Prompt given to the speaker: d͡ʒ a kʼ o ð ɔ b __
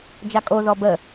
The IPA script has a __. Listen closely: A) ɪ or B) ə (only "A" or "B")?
B